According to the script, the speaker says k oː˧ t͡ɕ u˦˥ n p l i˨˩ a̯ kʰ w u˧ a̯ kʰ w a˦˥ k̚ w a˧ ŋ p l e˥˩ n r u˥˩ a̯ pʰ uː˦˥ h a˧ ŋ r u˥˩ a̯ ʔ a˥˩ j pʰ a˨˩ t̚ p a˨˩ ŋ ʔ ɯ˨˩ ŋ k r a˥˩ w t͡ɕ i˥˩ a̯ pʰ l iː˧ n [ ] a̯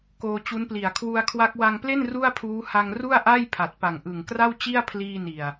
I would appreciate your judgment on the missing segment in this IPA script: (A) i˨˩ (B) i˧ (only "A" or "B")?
A